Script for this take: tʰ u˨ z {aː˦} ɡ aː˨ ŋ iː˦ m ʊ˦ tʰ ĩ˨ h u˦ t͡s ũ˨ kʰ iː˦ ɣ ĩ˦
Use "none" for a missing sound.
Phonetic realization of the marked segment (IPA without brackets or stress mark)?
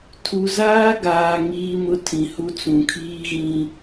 aː˦